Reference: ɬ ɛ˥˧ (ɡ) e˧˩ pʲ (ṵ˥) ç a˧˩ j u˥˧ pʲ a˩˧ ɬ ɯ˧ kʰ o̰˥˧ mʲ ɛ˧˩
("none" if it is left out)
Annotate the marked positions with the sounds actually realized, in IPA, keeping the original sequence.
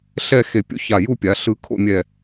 x, ṵ˥

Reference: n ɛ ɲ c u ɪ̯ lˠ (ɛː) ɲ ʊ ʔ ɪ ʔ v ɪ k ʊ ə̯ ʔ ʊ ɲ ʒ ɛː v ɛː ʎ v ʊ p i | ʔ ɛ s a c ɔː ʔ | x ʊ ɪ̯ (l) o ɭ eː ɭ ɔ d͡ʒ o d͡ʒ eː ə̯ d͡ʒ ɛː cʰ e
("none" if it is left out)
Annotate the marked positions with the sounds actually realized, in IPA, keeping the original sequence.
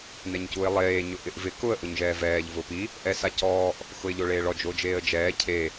eː, ʎ

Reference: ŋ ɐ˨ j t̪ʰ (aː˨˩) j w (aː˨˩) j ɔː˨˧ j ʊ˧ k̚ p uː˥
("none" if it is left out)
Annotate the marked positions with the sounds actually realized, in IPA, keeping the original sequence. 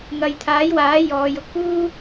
aː˨˥, aː˨˥

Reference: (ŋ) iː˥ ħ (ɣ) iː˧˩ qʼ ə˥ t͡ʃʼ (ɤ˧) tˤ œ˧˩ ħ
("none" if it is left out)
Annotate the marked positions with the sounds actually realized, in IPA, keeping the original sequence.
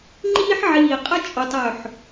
ŋ͡ǃ, ʕ, o˧

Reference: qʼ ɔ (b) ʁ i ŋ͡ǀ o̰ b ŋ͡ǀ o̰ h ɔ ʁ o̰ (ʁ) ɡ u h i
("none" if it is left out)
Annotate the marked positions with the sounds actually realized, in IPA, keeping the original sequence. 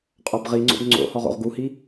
b, ʁ

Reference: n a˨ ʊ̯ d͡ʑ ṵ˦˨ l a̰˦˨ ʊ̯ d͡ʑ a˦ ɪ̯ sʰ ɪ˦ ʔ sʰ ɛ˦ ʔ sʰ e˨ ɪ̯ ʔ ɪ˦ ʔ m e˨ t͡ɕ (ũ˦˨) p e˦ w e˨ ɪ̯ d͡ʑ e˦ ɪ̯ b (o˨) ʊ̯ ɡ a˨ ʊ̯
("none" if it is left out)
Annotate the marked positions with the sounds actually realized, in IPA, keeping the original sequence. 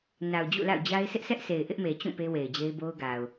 ũ˦˨, o˦

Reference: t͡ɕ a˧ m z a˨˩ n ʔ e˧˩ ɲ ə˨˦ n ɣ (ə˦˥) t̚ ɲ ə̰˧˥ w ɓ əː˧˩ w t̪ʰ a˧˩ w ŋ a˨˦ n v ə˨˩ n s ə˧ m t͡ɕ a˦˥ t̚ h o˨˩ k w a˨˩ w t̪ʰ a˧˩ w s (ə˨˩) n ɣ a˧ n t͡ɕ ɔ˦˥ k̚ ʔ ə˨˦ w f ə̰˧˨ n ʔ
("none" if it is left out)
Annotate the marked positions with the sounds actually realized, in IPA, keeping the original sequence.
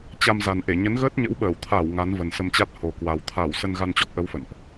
əː˦˥, ə˧

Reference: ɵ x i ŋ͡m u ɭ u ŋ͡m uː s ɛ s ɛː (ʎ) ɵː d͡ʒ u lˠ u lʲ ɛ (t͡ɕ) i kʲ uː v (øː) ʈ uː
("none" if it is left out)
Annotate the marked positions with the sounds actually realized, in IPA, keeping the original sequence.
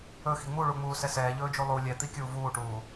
ʎ, t̪, uː

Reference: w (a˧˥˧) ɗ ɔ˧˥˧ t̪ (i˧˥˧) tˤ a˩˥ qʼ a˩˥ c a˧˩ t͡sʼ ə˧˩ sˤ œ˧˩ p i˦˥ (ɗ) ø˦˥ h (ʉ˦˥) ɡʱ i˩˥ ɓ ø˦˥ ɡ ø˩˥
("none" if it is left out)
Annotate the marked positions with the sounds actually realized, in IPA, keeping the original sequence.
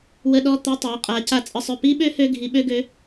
ə˧˥˧, i˧˥˧, ɓ, ø˦˥

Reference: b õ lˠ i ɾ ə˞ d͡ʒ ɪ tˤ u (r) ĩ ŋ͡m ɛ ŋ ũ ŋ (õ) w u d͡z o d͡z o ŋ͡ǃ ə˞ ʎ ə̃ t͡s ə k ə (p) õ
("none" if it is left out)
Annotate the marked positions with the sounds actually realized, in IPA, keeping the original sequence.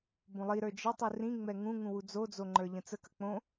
r, ũ, k͡p

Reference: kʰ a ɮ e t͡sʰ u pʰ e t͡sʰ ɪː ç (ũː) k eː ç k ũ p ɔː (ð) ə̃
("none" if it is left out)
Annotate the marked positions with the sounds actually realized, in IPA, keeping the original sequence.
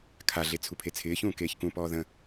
ũː, ð

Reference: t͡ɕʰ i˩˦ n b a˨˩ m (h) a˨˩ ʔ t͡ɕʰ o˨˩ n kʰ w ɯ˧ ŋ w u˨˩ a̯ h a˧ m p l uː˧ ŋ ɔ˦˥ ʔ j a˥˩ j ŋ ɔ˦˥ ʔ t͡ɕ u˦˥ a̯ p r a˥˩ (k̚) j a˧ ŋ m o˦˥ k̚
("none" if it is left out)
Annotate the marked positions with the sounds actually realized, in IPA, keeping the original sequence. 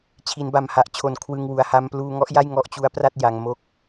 h, t̚

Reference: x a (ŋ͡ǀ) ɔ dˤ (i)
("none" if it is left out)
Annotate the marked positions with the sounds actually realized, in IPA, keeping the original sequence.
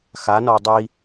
n, i

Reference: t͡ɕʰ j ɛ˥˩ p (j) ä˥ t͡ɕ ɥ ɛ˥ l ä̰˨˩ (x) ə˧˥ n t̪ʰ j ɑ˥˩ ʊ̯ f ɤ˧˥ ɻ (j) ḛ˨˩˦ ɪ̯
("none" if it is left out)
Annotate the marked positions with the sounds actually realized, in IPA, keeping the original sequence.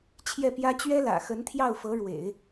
j, x, w

